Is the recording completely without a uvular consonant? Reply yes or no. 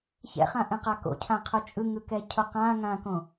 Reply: no